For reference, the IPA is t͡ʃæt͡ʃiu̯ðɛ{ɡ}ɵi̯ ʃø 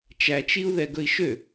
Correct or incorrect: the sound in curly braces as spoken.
correct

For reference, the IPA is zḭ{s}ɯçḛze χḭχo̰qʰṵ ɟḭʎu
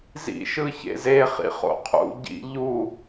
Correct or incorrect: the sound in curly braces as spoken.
incorrect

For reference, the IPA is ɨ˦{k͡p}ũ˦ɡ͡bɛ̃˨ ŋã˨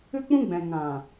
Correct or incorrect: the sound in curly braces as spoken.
correct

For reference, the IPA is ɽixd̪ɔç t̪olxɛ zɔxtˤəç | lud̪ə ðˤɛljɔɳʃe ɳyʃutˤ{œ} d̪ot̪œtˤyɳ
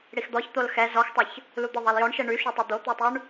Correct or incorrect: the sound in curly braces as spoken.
incorrect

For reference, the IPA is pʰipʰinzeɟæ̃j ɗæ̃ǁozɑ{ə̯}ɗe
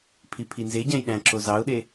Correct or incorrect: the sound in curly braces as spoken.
incorrect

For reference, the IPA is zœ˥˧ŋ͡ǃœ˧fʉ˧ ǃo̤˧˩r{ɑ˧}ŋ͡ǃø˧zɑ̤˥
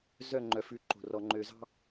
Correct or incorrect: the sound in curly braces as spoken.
incorrect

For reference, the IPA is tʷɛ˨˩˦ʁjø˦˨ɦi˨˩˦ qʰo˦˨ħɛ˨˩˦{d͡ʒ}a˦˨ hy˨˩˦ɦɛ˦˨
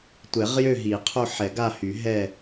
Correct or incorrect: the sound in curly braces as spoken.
incorrect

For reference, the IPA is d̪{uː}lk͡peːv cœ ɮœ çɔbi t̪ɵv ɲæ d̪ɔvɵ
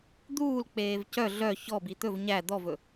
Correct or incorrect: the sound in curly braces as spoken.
correct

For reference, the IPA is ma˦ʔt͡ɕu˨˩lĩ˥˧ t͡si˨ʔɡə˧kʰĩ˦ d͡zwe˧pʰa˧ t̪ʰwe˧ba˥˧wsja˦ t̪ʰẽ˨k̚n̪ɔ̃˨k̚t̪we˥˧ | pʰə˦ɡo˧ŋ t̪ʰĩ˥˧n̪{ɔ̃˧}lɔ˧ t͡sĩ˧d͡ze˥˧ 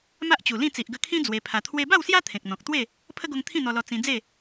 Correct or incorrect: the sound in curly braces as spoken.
incorrect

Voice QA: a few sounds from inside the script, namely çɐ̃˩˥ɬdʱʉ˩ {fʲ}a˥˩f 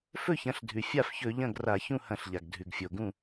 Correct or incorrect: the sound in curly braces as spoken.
correct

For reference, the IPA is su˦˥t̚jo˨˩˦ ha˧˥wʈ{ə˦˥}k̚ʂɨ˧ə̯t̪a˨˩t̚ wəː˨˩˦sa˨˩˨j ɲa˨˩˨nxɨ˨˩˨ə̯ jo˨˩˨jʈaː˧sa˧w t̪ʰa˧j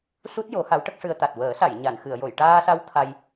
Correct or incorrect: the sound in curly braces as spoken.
correct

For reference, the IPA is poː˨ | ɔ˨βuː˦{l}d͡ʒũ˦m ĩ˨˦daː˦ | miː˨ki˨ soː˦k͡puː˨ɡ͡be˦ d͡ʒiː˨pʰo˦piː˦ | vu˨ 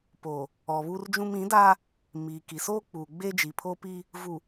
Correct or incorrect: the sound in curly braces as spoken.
incorrect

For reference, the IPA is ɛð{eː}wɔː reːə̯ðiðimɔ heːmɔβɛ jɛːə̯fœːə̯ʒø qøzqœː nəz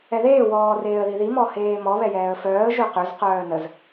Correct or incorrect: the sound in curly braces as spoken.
correct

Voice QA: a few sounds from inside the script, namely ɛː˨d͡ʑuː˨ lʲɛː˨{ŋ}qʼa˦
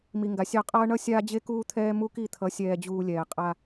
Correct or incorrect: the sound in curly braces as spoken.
incorrect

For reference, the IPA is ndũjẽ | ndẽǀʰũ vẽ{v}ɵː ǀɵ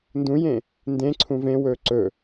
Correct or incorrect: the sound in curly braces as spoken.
incorrect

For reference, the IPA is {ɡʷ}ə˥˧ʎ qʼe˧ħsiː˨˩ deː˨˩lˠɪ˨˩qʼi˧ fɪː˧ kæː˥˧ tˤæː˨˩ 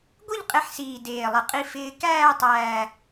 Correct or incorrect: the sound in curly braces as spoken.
correct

